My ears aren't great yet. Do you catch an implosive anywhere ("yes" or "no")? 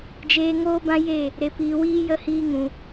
no